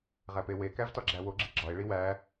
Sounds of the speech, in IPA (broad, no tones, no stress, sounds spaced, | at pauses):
ʁ æ p e w e k æ v t ɒ ɡ͡ǁ æ w o ɡ͡ǁ i ɡ͡ǁ ɒ e̯ ɭ i w æ